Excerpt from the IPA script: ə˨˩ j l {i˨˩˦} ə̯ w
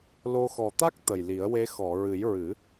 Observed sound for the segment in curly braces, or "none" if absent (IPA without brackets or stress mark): i˨˩˦